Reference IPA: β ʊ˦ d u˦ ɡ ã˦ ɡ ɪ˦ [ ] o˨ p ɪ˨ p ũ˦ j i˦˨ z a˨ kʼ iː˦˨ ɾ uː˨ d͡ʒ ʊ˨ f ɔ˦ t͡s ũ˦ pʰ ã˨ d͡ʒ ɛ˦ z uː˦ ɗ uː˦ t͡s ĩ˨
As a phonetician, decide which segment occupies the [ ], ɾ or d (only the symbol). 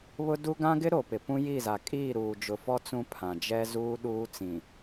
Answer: ɾ